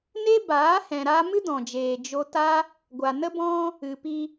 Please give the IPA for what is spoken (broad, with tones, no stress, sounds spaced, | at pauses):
n e˦ b aː˨˦ h ɛ̃˨ ɾ aː˧ m ɨ˦ d ɔ̃˨ d͡ʒ eː˨ d͡ʒ o˧ t a˦ | ɡʷ a˨ n ə˦ b ɔ̃˦ | ɨ˨ p i˧